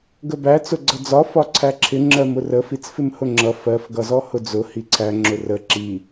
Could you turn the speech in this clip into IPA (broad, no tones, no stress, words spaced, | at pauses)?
ɡəbæ t͡sʊɡ͡ǀʌd͡zɒ fɒǀʰæǁʰɪ ŋ͡ǁɜmʊrə fit͡sfɪmhʊŋ͡ǁʌ fɜf ɡʌzɔhʊd͡zʊ hiǀʰæ ŋ͡ǁʊrə ǁi